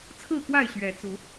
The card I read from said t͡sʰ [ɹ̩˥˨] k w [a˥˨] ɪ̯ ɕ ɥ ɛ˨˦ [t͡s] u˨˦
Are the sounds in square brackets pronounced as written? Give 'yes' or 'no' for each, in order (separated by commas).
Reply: yes, yes, yes